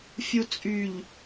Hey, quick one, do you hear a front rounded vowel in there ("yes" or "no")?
yes